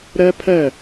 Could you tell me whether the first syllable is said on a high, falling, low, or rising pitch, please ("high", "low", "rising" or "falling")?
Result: high